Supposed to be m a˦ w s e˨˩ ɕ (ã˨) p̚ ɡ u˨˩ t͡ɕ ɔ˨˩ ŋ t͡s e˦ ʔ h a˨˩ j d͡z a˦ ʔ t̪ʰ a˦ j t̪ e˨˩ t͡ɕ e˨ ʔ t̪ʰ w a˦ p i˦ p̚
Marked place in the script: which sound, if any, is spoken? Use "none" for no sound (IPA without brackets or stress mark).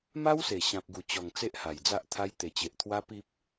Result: ã˨